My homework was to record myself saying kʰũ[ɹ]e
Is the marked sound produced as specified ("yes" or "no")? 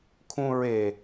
yes